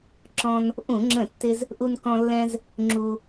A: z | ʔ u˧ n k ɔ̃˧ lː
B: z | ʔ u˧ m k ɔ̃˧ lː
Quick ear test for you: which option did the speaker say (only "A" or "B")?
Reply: A